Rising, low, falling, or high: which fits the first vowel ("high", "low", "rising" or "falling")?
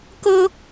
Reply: high